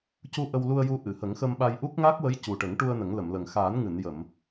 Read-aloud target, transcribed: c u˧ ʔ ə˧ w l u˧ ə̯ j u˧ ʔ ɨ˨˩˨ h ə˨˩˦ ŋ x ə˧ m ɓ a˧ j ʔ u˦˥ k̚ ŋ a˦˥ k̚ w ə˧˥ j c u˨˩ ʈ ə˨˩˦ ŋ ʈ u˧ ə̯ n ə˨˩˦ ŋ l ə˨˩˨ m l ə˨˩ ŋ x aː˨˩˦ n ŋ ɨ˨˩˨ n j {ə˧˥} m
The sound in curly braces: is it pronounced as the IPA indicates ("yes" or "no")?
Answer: no